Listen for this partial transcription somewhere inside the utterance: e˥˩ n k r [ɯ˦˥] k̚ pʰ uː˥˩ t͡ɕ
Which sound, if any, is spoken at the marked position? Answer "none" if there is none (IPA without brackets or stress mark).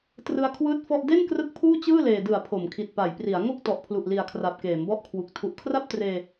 ɯ˦˥